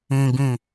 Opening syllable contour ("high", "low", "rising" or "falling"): low